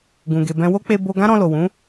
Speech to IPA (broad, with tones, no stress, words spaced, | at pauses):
ɡũ˨ɡe˨bɛ̃˧ wo˦k͡pe˧ bo˧ ɡã˦ɾɔ̃˧lo˨ wũ˨˦